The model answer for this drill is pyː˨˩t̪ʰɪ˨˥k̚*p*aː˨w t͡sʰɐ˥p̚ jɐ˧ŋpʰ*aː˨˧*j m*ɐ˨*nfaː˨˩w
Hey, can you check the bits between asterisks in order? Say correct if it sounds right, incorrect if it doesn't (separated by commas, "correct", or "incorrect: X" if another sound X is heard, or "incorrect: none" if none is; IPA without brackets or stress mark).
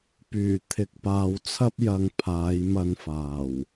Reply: correct, correct, incorrect: ɐ˧